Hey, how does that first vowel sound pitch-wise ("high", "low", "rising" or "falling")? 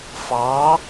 rising